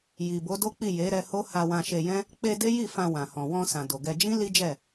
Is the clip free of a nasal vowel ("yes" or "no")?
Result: no